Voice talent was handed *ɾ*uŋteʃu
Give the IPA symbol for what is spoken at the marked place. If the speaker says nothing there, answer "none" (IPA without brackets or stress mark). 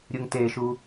ɾʲ